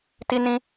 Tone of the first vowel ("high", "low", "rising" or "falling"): high